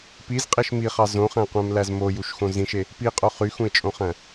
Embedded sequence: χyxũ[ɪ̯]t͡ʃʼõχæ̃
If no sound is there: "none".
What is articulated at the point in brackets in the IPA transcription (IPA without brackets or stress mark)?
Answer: ɪ̯